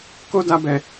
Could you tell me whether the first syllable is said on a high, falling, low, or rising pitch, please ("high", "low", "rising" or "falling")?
high